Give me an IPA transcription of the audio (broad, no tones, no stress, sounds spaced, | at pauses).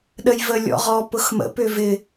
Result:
ɗ ə j v ə lʲ ɔ̰ ʁ ɔ p ʊ x m ə̰ p ʏ v ɪ